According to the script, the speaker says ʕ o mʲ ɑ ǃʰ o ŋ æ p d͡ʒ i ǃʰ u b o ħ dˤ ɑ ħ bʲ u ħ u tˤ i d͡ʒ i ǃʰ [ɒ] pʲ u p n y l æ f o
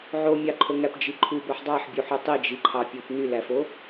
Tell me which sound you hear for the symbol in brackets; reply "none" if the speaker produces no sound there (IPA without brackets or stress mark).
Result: ɑ